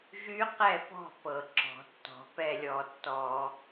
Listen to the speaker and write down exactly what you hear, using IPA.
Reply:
ʒy˦˥qɛ˥˨pɔ̤˥˨ pɤ˧˩˧ǁɔ̤˧˩˧tːɔ̤˧˩˧ pɛ˥˨lʲɔ˧˩˧tːɔ˧˩˧

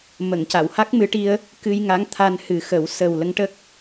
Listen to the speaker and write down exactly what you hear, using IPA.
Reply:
mə˨˩˨ŋ ca˨˩˨wha˦˥k̚mɨ˧ʈi˧ə̯ | kɨ˧jŋa˧˥ŋ t̪ʰa˧nhɨ˨˩˦xə˨˩˦w sə˨˩w lə˧ŋʈə˦˥k̚

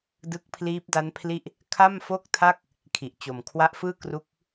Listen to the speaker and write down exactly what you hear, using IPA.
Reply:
dɯ˦˥k̚pʰliː˦˥p̚da˦˥npʰli˥˩ʔ | kʰa˥˩mfo˥˩k̚tʰa˥˩k̚ | kʰi˨˩ʔt͡ɕo˨˩m kʰwa˦˥ʔfɯː˥˩kru˦˥k̚

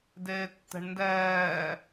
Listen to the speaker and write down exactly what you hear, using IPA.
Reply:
deːtːɛ̤ɳndɛː

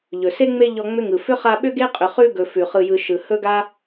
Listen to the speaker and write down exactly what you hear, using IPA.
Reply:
ʎɵ˩se˥ŋ͡me˦ ʎɔ˦ŋ͡mʏ˥ŋɯ˩ fʏ˥χa˦ ɓʏ˥ɡe˥qʼʏ˨χʉ˦ ɡɵ˨fʉ˩χɯ˨ jɯ˨ ʃɯ˩ hɵ˥ɡa˥

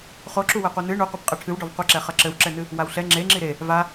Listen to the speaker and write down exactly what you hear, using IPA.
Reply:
χoǁuwɛqʷe nɨ ɳu qʷɛpqʼɛʈʰɨwɖɔv qʷɐǁɛ χɐǁɘwǁɛnɨ | wawɬɛ ŋ͡ǁeŋ͡ǁi ɾe | va

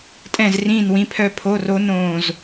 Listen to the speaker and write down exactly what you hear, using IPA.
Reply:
tʼɛ̃˥˧zrĩː˥˧nwĩ˧˥˧pʰœ˥˧ pʰo˧˥˧ro˦˥ nõː˥˧z

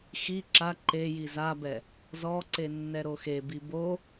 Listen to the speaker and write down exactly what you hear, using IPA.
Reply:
xi ǁa ǃeji zabɛ | zɔǀe nːɛɾoxebi bo

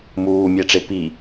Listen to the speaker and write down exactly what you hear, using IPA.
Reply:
muː mʲɛʈ͡ʂepi

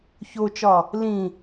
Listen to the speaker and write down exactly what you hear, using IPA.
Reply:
çot͡ʃɒ | lĩ

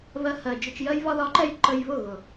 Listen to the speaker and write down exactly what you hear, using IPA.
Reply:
βɜ˧hɜ˨d͡ʒʊ˧t͡ʃ jɜ˧jβɒ˧ðɒ˨˦ǃɛ˧j ǃə˧jβʊ˦˨ ɣʊ˨

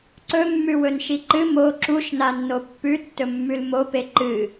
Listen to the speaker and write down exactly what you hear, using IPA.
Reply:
ǀɵmːʉwɵnʃi ǃɨ mo ǁuʃnanːo pːʉtːɵmːʉl mope ǃɨ

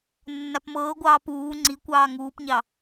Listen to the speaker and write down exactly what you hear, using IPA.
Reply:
nːapmɤːɡʷɑː puː ŋ͡ǀi kʷɑːŋuːpɲɑ

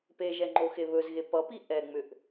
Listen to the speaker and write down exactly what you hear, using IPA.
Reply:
peʒɛ ŋ͡ǃoxeβɵzɣe pʌpi ʔɛŋ͡mʏʔ

